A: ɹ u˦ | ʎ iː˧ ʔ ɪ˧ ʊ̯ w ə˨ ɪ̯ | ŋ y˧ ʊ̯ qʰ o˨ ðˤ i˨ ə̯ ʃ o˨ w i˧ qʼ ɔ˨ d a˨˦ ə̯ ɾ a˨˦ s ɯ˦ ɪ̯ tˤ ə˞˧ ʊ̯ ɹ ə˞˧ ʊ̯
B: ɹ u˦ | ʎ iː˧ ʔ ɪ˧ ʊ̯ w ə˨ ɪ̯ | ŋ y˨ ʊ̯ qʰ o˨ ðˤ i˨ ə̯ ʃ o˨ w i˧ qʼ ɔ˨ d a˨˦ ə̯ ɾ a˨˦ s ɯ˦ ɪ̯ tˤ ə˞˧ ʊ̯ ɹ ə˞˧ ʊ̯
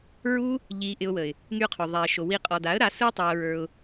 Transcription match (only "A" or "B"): A